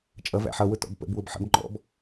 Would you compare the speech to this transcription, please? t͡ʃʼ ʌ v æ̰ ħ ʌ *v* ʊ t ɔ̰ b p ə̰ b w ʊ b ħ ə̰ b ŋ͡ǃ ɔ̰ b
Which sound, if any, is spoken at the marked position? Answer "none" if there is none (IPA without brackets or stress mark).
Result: w